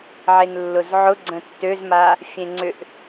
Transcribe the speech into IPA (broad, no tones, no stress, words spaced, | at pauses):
ʕenlːʊzʕʊ ɡ͡ǀə̃tːøzma | fʲẽŋ͡ǀʏʔ